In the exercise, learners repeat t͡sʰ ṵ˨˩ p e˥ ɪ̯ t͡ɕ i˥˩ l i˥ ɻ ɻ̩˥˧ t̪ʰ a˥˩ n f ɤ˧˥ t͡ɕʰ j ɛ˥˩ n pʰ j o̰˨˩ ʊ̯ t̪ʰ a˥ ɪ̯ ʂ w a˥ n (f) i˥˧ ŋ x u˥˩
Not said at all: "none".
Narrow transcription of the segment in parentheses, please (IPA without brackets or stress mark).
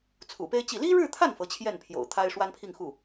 pʰ